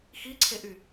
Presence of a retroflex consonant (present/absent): absent